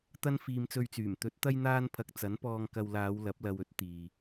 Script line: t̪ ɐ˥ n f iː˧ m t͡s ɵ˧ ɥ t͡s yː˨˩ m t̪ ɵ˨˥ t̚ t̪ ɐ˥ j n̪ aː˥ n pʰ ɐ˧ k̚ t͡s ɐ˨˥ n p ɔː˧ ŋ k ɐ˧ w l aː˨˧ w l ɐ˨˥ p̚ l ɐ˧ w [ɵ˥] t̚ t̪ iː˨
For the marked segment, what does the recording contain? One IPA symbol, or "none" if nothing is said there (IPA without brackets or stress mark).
ɵ˥